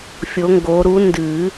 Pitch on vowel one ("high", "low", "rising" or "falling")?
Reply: rising